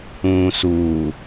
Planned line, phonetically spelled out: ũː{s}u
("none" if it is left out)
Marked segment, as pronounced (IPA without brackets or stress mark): s